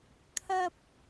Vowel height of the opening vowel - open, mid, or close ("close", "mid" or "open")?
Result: open